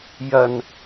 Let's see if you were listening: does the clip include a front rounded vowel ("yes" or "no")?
no